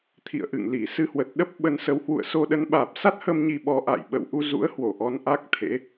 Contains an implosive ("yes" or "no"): yes